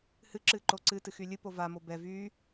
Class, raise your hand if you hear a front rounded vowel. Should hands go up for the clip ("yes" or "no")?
yes